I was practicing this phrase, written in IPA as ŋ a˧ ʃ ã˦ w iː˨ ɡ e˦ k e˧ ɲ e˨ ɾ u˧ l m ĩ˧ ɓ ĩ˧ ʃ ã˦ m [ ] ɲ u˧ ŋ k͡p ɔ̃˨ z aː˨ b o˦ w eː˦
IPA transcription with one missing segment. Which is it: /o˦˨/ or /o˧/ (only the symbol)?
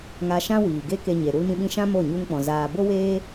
o˦˨